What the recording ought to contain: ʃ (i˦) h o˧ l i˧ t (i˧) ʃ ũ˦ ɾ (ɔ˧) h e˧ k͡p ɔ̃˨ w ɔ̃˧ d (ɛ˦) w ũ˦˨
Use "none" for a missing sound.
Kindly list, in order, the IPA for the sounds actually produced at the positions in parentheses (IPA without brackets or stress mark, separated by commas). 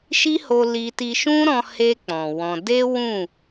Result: i˦, i˧, ɔ̃˧, e˦